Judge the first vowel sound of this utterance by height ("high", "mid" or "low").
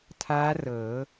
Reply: low